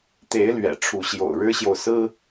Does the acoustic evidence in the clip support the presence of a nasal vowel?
no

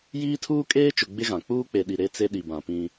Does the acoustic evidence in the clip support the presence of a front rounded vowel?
no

